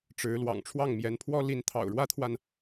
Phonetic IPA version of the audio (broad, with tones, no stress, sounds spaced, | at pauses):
ʈ͡ʂ ɻ̩˧˥ l w ɑ̰˨˩ ŋ ʈ͡ʂʰ w ɑ˥˩ ŋ m j ɛ˧˥ n pʰ w ɔ˥ l i˧˥ n t̪ʰ ɑ̰˨˩ ʊ̯ ɻ w ä˥ t̪ʰ w a˨ n